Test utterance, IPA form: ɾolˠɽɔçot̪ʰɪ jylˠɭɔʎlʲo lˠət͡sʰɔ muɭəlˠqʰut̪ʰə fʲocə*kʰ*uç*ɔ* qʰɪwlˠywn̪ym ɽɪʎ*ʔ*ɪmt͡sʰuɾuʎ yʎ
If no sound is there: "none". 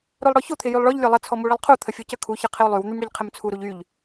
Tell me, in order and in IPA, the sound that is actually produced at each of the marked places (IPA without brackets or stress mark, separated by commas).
kʰ, ə, qʰ